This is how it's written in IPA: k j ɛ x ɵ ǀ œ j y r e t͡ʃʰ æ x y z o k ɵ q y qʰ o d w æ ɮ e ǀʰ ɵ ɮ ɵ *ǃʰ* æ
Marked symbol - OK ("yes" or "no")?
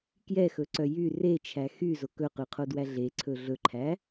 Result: yes